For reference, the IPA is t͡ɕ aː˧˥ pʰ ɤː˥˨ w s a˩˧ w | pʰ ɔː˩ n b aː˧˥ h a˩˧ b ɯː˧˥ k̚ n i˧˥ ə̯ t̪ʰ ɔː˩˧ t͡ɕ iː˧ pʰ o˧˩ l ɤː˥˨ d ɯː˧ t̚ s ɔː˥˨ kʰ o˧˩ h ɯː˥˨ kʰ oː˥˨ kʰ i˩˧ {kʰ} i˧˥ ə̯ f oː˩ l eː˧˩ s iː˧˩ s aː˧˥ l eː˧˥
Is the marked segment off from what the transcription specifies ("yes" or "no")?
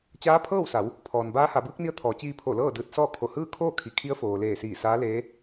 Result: no